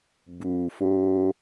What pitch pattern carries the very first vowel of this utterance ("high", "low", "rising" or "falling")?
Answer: low